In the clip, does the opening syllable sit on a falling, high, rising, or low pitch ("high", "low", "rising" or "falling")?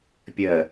low